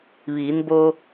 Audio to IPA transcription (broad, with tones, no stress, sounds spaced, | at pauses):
ʋ iː˩˧ n b o˧